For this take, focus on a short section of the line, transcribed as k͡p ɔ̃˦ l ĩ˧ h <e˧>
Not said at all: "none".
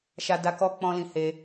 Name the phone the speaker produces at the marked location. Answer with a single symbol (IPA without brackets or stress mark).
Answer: e˧